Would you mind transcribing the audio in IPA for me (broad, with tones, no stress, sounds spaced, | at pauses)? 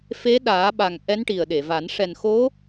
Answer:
f e˧˥ ɗ aː˨˩˦ ɓ a˨˩ ŋ ʔ ɛ˧˥ n ʈ i˨˩ ə̯ ɗ e˨˩˨ v a˨˩˦ n ʂ ɛ˨˩ n x o˧˥